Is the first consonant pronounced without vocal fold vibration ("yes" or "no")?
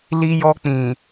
no